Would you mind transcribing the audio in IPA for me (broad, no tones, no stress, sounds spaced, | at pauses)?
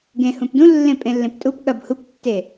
ɡ ẽ h ũ p d ũ lː ẽ pʼ ẽ lː ẽ p tʼ u p ɠ ɐ b h u p tː e